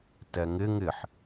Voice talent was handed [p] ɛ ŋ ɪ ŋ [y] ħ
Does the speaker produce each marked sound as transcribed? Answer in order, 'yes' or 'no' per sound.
no, no

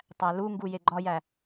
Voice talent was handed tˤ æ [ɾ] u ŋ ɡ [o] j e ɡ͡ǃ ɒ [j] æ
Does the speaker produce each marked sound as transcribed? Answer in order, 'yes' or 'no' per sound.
no, no, yes

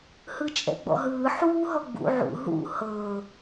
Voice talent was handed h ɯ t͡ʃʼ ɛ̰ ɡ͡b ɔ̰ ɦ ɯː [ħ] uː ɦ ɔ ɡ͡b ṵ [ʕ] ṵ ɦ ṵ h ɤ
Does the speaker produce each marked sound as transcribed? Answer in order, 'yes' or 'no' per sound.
yes, yes

